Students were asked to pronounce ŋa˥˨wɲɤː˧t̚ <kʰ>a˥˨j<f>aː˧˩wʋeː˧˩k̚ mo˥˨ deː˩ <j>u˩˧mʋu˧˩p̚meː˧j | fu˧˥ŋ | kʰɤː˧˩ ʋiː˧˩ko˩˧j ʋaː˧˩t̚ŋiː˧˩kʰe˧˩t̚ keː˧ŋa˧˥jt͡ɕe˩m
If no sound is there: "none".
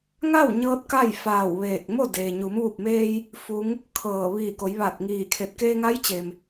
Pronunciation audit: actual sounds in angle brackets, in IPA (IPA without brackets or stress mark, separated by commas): k, f, ɲ